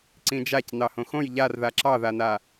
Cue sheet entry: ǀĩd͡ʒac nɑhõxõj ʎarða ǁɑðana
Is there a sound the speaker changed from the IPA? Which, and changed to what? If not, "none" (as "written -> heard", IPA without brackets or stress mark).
none